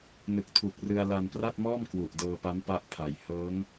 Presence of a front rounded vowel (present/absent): absent